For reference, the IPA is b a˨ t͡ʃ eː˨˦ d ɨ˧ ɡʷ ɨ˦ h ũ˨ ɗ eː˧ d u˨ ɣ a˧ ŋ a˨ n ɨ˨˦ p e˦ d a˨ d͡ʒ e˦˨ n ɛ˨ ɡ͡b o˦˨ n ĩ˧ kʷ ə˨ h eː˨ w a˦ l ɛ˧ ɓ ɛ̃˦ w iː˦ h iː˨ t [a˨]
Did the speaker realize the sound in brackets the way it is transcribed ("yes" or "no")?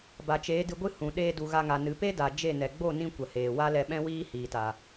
yes